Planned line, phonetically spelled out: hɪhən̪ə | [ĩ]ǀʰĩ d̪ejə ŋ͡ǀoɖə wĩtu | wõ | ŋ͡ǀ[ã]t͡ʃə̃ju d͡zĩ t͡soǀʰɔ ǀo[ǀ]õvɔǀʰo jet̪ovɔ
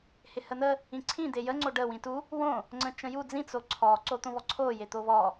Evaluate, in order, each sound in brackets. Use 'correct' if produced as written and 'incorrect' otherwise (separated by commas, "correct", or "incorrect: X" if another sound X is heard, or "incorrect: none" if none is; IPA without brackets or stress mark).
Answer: correct, incorrect: ə̃, incorrect: t̪